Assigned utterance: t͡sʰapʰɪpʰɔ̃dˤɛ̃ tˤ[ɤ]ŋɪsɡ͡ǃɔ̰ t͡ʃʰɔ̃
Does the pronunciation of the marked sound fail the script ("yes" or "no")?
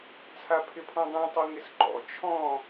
no